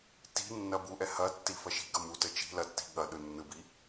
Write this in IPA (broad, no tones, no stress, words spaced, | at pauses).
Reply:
ti̤nːɐ buʔɛ hɐtːi fɐʃi̤ɡɐ mutə t͡ʃi̤ lɐtːi̤ ɠɐɗɯ nːɯbi